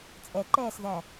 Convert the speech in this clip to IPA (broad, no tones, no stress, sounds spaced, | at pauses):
t͡sʼ ɛ ǃ ɛː s ð æ